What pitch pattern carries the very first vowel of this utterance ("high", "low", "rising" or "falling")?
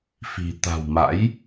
low